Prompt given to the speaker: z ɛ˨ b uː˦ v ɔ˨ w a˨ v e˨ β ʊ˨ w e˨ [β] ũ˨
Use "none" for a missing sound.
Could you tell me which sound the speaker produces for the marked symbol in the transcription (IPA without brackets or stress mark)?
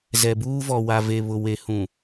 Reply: h